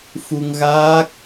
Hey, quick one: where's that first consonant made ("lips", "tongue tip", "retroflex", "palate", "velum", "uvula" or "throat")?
lips